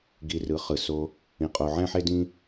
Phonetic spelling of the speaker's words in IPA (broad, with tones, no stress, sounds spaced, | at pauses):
ɡ i˧ r ɯ˨˦ χ ɯ˨ s o˧ | ĩ˧ qʼ o˧ ʕ ɛ̃˦ ħ e˦ d ĩ˦